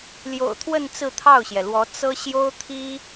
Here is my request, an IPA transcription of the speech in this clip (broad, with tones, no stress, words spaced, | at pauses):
ljo̰˨˩ʊ̯t̪ʰwə˥˧n t͡sɹ̩˥˧t̪ʰɑ˥˩ʊ̯ɕjɛ˩lwɔ˧˥ t͡sɤ˥ ɕjo˥ʊ̯t̪ʰi˥